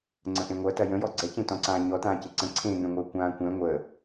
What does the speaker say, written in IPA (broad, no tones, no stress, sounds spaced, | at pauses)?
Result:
ŋ͡ǀ ə̃ ʔ ẽ ŋʷ ɐ t ɐ j ə̃ j ɔ ɡ͡ǀ ɛ c ẽ t ɔ̃ ǀ ãː ɲ ɔ t ãː c e ǀ ə̃ ǀʰ ẽ ŋ ɛ̃ ŋʷ ə˞ kʷ ãː kʷ ɛ̃ ŋʷ ə